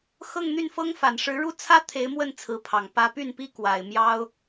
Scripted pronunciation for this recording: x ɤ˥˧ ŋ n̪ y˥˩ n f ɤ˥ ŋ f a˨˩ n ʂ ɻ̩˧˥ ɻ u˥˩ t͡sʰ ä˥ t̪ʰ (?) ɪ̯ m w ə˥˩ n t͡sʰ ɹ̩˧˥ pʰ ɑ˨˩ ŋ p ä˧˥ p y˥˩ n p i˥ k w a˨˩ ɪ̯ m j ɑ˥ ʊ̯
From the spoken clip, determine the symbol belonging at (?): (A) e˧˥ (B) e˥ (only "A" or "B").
A